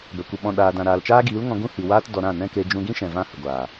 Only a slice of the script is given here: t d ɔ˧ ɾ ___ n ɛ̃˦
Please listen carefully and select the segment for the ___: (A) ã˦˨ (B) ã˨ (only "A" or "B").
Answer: A